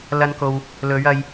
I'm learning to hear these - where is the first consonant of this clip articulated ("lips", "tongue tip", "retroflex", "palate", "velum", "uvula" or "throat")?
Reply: tongue tip